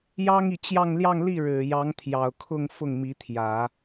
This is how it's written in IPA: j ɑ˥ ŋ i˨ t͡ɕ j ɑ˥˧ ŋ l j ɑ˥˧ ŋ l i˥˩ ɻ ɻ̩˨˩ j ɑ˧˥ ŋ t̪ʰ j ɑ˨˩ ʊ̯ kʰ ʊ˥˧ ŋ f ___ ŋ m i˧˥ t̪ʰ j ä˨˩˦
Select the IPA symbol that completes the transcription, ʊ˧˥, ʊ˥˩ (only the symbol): ʊ˥˩